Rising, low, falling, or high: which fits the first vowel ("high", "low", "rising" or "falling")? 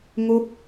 falling